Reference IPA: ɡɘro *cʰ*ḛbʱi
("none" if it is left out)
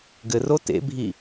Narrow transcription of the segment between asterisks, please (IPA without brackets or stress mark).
t